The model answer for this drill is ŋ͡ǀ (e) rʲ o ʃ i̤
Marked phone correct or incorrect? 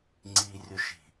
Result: incorrect: i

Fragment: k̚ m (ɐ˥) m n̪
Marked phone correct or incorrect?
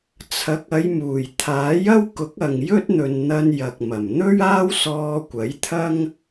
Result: incorrect: ɐ˨˩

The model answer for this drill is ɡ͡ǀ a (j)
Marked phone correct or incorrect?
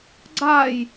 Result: correct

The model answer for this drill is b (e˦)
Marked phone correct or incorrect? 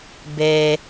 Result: correct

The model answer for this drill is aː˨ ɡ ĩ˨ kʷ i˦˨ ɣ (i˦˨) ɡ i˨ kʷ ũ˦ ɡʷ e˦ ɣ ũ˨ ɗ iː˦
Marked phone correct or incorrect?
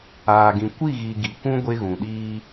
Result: incorrect: i˨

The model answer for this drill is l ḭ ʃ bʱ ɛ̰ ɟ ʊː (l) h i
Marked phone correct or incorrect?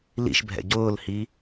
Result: correct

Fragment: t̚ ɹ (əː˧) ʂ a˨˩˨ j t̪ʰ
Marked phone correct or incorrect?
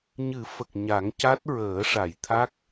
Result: incorrect: əː˨˩˦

